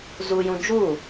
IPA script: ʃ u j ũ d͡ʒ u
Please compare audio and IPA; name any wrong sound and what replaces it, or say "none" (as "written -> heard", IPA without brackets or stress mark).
ʃ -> z